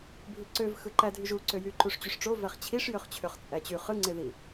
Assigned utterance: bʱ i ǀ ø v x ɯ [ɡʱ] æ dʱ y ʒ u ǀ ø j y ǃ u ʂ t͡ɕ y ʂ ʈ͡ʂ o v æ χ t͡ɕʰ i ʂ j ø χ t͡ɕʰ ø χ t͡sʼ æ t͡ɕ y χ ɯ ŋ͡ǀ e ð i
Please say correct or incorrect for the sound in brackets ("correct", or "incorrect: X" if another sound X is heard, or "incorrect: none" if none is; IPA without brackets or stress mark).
incorrect: ǃ